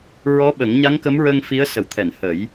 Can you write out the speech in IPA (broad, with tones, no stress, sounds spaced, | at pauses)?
ɹ ɔ˧˥ ɓ ə˨˩˦ ŋ ɲ a˧˥ ŋ k ə˧˥ m ɹ əː˧ ŋ f i˧˥ ə̯ s ə˨˩˨ w t̪ʰ ɛ˨˩˨ n h ə˨˩˦ j